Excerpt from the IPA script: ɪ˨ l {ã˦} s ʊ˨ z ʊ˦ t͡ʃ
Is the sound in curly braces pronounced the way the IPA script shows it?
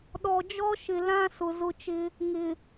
yes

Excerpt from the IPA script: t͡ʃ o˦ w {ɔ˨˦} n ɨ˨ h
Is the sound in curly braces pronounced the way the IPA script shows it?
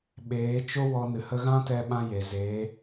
no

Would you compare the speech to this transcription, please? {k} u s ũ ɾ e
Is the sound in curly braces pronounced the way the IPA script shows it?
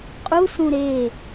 no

